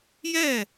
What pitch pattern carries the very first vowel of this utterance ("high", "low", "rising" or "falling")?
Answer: falling